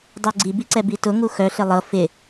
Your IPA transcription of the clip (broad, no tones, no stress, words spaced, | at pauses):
dˤœɡ͡ǀibiǀɛ bitʊŋu xœɬɪ lˠɤ fɪ